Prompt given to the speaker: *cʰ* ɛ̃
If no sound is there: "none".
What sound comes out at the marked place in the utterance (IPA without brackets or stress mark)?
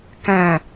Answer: k